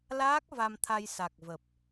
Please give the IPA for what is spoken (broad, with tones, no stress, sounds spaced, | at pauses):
l aː˦˥ k̚ v a˧ m t̪ʰ a˧ j s a˨˩ k̚ v ə˨˩ p̚